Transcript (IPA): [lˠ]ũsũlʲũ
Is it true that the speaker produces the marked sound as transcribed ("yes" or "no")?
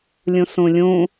no